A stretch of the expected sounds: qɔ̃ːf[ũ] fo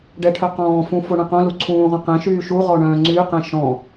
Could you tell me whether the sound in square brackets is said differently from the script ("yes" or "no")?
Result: no